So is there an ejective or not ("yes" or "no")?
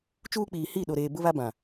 no